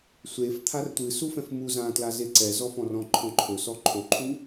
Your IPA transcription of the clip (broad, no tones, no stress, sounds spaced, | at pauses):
sʷ e f t̪ʰ a r tʷ ɨ s u f ɛ̃ f m u z ã t l a z e ǀ ɛ z ɔ f ɔ̃ r ɔ̃ ǃʰ ɔ̃ ǃʰ ɵ s ɔ ǃʰ o ǃʰ u